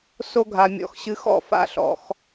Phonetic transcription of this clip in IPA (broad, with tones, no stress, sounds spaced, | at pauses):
s o˦ ɡʱ a˧ mʲ ɔ̰˨˦ x ɕ ɨ˧ x ɔ̰˦˨ f a̰˦ ɬ ɔ̰˧ x